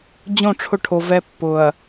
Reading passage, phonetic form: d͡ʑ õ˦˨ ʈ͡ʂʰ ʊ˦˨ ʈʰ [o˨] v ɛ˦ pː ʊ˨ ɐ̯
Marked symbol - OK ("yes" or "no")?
yes